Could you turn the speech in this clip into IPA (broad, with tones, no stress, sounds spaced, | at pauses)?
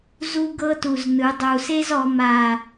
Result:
z u˦ ɡ ɤ˦ t u˨˩ z n ɯ˩˧ dˤ u˨˩ s e˦ z ɔ˩˧ m a˨˩